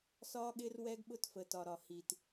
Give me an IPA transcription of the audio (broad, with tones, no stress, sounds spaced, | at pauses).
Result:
s ɒː˦ ɠ ɪː˦ r w ɛ˦ ɡ ɓ ʊ˦ t f ə˨ t ɒ˨ ɾ ɒ˨ h i˨ t